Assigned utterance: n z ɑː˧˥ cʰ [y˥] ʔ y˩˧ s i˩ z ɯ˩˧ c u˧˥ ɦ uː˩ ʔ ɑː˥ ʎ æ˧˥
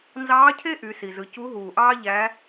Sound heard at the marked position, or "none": e˥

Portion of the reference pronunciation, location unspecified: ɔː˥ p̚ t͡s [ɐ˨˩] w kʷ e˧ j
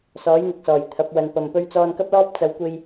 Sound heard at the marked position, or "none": ɐ˨˧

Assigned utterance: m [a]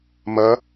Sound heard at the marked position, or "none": ʌ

